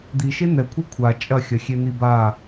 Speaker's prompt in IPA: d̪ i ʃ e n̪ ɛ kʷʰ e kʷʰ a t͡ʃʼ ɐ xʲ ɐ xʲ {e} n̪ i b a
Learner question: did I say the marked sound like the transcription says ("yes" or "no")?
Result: yes